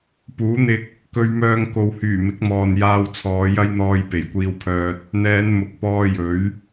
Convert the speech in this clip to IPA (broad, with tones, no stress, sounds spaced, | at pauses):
p uː˨˥ n̪ ɪ˧ k̚ | k ɵ˧ ɥ m œː˧ ŋ k o˨ w h yː˨˩ m ɪ˨˥ k̚ m ɔː˨ n j aː˧ w t͡sʰ ɔː˨˧ j ɐ˥ j n̪ ɔː˧ j p e˨˩ j kʷ iː˧ w pʰ œː˧ t̚ | n̪ ɛː˨˧ n m ʊ˨ k̚ p ɔː˧ j ɵ˨˥ ɥ